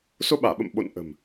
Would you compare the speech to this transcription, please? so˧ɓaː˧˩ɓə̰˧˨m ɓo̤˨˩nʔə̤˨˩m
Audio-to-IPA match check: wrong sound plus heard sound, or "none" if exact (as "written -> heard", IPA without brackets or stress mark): o̤˨˩ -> o̰˧˨